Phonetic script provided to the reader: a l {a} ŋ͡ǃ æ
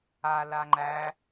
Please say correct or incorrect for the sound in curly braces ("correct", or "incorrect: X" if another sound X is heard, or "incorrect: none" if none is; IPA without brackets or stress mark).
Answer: correct